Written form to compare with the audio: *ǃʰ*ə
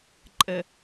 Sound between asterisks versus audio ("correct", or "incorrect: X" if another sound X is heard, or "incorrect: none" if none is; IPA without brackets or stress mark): incorrect: ǃʼ